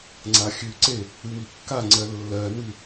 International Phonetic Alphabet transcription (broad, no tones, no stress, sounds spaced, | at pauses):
ŋ͡ǀ a xʲ ʉ ǀ e | ɨ ŋ i kː a ŋ͡ǀ ɜ lː ɜ n ɨ